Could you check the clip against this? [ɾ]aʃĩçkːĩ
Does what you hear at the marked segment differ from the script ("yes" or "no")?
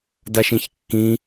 yes